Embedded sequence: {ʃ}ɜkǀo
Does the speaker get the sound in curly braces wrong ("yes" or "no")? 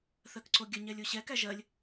yes